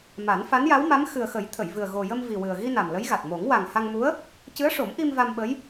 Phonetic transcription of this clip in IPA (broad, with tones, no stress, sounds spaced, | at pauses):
m a˨˩˦ n f a˧˥ n j a˧˥ w m a˧˥ m x ɨ˨˩ ə̯ x ə˨˩˦ j t̪ʰ ə˨˩˨ j v ɨ˨˩ ə̯ ɣ o˨˩ j ə˧ m v i˨˩ w ɨ˨˩ ə̯ ɣ i˧ n a˨˩ m l ə˧˥ j ɣ a˨˩ t̚ m o˨˩˦ ŋ w a˨˩ ŋ h a˧ ŋ m u˧˥ ə̯ | c ɨ˧˥ ə̯ ʂ o˨˩˦ m ʔ i˧ m v a˧ m ɓ ə˧˥ j